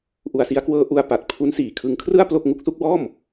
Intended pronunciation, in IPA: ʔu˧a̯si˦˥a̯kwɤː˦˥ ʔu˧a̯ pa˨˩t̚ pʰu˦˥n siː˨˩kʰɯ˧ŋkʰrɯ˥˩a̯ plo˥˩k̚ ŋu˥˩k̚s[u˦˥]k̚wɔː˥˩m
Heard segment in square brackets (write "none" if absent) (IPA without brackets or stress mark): u˥˩